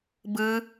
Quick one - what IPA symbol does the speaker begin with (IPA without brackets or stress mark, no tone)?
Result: b